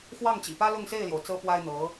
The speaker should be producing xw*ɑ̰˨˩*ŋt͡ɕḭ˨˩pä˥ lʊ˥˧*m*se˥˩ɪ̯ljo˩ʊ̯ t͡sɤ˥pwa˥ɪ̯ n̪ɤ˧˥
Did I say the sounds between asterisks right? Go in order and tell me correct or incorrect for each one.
incorrect: ɑ˥˩, incorrect: ŋ

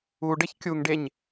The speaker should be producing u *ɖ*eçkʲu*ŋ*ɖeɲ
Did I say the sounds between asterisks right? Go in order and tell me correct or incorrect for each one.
correct, correct

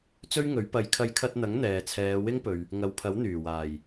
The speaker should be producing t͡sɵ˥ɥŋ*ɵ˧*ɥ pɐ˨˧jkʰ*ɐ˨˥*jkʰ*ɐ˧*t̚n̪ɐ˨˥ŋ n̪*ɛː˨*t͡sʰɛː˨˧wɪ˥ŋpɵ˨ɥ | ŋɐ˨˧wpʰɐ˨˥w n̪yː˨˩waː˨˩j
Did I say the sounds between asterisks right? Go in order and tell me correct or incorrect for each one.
incorrect: ɵ˨˥, incorrect: ɐ˧, correct, correct

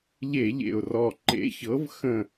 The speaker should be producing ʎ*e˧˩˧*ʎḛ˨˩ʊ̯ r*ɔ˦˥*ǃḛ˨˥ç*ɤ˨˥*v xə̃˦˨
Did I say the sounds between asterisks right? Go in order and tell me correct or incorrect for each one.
correct, incorrect: ɔ˨˩, correct

